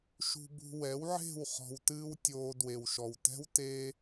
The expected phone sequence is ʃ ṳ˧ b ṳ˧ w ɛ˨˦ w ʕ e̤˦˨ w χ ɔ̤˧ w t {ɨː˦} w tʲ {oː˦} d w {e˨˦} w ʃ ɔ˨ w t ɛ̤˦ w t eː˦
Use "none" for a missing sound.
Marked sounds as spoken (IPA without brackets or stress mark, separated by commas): ɨː˦, oː˧, e˨